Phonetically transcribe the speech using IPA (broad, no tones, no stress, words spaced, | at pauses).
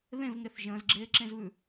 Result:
ðẽvŋeθ ʒə̃ːzɡ͡ǁeːǁẽzβʉ